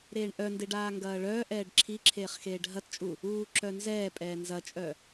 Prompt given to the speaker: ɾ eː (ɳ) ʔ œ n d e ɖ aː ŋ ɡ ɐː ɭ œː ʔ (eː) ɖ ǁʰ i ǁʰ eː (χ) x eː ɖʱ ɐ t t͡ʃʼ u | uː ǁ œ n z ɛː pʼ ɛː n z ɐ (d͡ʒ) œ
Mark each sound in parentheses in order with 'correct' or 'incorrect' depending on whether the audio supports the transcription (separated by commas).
correct, incorrect, correct, incorrect